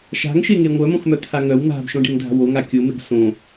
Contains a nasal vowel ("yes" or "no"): yes